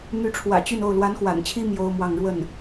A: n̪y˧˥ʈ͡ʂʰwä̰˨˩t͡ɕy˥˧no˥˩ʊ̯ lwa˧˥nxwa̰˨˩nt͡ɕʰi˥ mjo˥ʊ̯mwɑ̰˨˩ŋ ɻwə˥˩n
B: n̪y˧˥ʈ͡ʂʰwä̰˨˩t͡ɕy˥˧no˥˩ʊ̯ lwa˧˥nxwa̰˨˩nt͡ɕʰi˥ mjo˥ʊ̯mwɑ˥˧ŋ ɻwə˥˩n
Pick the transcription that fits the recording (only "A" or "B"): B